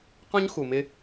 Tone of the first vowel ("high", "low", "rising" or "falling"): high